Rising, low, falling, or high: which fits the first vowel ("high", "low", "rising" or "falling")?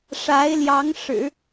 rising